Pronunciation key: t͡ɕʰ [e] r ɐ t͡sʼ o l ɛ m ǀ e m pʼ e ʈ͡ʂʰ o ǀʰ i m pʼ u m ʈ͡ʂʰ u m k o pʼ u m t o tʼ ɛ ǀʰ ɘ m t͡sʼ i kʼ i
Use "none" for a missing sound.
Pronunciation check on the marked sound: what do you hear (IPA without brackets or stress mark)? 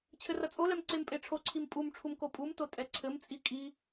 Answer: ɘ